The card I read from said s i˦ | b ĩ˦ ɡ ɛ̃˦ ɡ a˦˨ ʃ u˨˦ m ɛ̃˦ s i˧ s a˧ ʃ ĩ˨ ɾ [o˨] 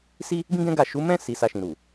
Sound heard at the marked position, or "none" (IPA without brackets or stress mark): u˨